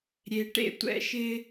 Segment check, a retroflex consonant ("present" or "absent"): present